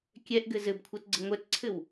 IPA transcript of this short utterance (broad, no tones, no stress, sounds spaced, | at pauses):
kʲ ɛ ʔ ɡ ɘ z ɘ b kʷʰ ɤ t ɡ͡ǀ ə ŋʷ ɛ t ǀʰ ɘ w